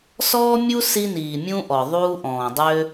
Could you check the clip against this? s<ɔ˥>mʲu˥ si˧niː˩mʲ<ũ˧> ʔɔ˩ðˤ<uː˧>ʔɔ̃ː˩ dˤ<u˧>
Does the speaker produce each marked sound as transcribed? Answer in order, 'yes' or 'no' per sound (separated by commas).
no, yes, yes, no